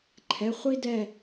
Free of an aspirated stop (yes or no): no